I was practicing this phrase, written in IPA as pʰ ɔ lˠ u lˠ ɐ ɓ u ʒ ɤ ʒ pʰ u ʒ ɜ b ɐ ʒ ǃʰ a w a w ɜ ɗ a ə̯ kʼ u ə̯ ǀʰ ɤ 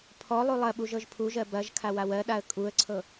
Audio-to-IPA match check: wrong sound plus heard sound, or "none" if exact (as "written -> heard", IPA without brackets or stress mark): ǃʰ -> kʰ